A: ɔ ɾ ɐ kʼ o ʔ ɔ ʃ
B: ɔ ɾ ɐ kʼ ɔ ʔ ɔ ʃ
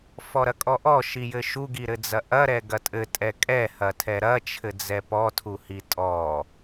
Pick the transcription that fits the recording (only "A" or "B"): B